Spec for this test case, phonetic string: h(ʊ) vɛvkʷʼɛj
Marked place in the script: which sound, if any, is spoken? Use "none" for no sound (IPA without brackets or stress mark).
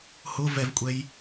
ʊ